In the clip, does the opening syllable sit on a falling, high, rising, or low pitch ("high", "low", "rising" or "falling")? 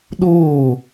falling